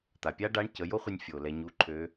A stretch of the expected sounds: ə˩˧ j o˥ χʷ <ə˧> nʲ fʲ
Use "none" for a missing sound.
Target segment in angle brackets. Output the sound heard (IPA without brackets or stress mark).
ə˧